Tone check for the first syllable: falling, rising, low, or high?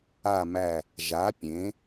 low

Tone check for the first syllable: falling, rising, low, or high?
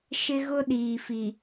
high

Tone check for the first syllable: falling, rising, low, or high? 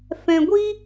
low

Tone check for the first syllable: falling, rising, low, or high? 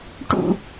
falling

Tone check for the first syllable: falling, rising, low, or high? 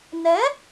rising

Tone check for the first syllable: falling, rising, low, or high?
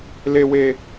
low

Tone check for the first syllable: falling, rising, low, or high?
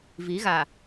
rising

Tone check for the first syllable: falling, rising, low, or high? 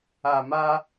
low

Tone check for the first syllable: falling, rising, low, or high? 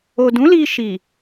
low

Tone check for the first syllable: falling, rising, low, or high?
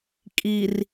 low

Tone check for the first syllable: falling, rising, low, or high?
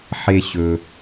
high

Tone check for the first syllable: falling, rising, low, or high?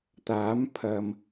rising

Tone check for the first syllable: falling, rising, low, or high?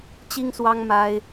high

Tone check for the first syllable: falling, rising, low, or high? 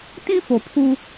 high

